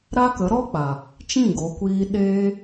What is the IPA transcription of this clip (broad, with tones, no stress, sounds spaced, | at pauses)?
ɾ a˦ k ə˨˦ ɾ ɔ˦ k͡p a˨ | t͡ʃ ĩ˦˨ ɡ o˨˦ kʷ iː˧ ɗ eː˧